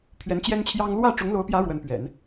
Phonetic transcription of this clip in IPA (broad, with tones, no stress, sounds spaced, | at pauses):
pʰ ɥ ɛ˧˥ n t͡ɕ j ɛ˥ n t͡ɕʰ j ɑ˥ ŋ l w ä˥˩ ʈ͡ʂ ʊ˧˥ ŋ l o˧˥ ʊ̯ p j ä˧˥ ɻ w ə˧˥ n p ɥ ɛ̰˨˩˦ n